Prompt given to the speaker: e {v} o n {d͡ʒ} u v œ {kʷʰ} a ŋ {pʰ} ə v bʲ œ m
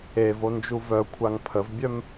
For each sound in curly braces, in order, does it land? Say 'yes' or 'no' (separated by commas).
yes, yes, yes, yes